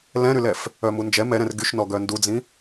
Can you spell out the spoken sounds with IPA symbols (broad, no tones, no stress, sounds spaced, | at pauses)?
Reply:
l ɛ̃ ɾ y l ɛ f | œ m u n d͡ʒ ɛ m ɛ ɾ ɛ̃ r ɡ y ʃ n ɔ ɡ œ n d u d͡z ĩ